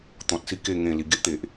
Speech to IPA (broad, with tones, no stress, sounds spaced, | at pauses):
t̪ ɔ̃˨ t̚ s i˥˧ k e˥˧ ŋ ẽ˨˩ l i˨˩ ɡ e˦ ʔ t̪ e˨ ʔ